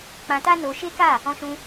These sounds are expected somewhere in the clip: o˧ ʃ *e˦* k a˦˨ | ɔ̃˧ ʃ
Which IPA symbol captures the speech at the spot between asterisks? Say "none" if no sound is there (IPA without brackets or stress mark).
e˦